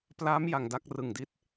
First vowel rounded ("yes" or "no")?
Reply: no